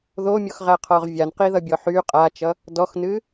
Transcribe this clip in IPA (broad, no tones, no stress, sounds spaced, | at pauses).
ð o mʲ ɔ x ʁ æ qʰ ɔ ʁ vʲ a n q i ð ʌ bʲ ɔ ħ y qʼ a t͡ʃ ʌ | d ɔ x n ɨ